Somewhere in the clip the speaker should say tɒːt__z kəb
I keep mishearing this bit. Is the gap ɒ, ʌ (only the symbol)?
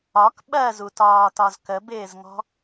ɒ